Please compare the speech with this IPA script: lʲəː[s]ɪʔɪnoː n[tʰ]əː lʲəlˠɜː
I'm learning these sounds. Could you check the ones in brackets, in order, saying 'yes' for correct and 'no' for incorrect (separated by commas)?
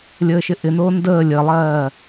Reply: no, no